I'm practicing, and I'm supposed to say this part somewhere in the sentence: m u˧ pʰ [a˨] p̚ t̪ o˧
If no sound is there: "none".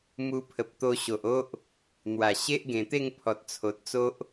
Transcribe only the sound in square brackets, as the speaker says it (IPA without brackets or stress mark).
ə˨